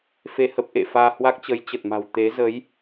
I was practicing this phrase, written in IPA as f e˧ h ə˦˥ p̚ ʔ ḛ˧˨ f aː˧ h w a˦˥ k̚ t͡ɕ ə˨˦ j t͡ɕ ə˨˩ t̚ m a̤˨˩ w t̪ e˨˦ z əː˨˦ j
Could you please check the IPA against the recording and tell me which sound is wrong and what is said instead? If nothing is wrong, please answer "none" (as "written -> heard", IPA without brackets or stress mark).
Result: none